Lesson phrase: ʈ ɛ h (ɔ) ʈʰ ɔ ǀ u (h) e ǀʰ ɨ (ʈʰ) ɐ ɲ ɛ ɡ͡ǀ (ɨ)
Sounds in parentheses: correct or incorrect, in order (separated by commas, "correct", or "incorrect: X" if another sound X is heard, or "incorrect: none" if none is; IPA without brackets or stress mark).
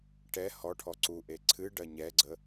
correct, incorrect: ʔ, incorrect: ɖ, incorrect: ə